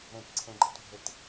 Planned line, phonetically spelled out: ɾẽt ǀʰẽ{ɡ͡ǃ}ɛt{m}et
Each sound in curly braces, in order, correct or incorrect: correct, incorrect: bʱ

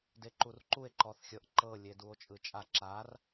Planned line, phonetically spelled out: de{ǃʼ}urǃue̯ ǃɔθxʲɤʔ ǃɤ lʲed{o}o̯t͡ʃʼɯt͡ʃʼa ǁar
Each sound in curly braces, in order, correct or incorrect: incorrect: ǃ, incorrect: u

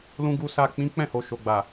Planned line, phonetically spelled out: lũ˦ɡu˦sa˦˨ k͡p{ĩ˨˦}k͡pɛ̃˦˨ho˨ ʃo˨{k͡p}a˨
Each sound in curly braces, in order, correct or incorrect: correct, incorrect: ɡ͡b

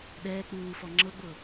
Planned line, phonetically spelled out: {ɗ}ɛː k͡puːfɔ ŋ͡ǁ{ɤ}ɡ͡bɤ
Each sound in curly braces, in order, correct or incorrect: correct, correct

